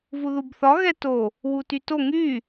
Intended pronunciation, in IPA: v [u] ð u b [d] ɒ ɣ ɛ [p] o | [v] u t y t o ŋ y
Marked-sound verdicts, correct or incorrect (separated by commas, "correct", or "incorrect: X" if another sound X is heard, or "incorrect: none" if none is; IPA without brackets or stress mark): correct, incorrect: θ, incorrect: t, incorrect: w